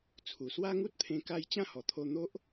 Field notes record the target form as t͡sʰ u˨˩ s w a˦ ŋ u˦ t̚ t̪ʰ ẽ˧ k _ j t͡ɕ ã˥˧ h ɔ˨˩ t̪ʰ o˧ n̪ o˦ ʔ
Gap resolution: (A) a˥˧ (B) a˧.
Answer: B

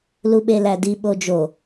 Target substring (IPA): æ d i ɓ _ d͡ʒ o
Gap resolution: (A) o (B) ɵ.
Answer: A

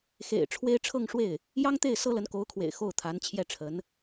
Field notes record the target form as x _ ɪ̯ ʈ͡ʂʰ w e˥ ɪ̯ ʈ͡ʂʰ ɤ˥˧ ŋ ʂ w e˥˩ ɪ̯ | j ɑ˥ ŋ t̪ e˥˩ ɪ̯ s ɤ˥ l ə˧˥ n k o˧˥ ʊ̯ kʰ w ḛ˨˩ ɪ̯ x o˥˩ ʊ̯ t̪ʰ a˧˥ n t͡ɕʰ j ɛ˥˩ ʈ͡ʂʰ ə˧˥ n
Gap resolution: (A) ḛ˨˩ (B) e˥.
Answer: A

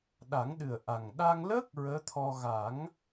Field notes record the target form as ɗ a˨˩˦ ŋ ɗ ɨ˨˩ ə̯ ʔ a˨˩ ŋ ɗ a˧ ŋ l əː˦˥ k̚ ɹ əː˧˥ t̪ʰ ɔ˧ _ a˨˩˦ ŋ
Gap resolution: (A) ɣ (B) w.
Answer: A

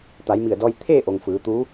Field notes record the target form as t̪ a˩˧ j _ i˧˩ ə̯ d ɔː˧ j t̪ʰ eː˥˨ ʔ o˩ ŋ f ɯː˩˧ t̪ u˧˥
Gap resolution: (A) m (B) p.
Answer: A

